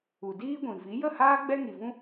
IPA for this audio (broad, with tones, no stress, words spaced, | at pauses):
u˨diː˦ɡʷĩ˨ vi˨˦ jə˦˨haː˦ ɡ͡bɛ˦ŋi˨vũ˦